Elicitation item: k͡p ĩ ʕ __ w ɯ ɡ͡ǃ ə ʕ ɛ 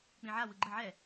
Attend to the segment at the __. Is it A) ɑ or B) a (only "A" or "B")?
B